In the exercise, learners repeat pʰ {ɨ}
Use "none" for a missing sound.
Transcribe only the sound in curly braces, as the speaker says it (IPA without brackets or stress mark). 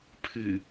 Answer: ɨ